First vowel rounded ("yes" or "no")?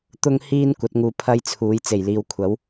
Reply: yes